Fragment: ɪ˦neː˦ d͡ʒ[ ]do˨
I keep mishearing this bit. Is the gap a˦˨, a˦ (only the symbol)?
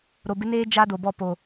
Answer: a˦